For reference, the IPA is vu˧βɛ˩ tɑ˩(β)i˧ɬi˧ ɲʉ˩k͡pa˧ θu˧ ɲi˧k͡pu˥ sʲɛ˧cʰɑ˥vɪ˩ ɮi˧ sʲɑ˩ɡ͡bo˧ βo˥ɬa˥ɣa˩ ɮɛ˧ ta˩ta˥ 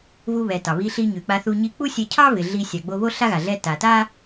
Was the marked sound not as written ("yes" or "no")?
no